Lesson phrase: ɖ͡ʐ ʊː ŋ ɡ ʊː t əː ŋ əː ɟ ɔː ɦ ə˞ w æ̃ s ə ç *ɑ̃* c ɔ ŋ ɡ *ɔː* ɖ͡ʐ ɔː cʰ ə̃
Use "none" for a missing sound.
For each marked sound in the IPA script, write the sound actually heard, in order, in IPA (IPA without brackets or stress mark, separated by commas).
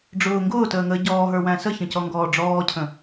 ə̃, ɔː